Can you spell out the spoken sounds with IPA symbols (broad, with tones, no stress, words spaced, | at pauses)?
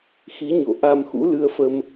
xi˨˦ɲo̰˧˨ ʔa˧mxṵ˧˥lɨ˧ə̯fə˧m